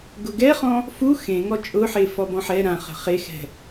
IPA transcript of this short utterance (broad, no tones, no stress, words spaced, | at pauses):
ɡʊɡɛχɔ̃ | fu xẽŋɔ t͡ʃʼʊħe fɔbɔ̃ħɛ ɾãχə̤ χexɛ̤